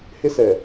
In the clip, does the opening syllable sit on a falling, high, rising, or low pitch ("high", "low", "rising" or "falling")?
high